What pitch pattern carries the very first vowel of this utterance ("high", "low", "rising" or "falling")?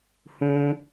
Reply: high